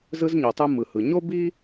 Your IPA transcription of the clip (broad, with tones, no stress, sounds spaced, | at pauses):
z ɯ˧ z ɲ o˩ tˤ ɯ˧ m ɯ˩ h ɯ˩ ɲ o˥ b i˥